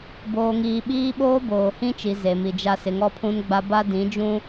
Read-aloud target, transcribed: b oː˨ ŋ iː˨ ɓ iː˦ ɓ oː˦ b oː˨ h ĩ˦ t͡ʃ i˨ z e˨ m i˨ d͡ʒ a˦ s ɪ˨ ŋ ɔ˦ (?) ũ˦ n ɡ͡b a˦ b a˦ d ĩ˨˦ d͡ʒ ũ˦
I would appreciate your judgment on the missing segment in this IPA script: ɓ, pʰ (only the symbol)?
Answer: pʰ